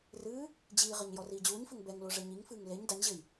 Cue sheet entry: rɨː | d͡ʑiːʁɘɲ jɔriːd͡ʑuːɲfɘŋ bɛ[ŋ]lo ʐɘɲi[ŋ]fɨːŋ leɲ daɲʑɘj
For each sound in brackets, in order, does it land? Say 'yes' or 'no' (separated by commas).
yes, yes